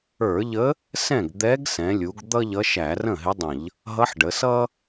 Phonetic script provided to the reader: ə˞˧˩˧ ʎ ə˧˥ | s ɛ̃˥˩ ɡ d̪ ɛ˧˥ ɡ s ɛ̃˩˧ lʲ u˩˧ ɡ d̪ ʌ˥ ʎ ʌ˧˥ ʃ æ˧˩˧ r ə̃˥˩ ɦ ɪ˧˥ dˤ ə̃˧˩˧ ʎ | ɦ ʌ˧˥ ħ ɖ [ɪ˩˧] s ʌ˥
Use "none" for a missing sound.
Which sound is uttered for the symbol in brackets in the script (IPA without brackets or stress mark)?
ə˩˧